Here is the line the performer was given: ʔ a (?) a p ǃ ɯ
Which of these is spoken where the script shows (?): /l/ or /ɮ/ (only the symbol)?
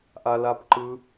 l